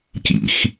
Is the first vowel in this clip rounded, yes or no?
no